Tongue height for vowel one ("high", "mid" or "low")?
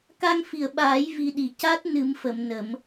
low